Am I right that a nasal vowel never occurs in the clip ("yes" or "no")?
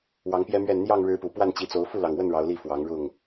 yes